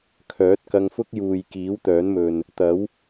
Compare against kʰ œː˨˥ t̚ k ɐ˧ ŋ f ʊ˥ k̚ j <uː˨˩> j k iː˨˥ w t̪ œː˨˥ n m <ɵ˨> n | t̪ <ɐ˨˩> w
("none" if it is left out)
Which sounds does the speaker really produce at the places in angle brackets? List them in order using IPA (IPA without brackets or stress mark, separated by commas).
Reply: uː˨, ɵ˨, ɐ˨˥